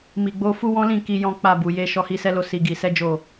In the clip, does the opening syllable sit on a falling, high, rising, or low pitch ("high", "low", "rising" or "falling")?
low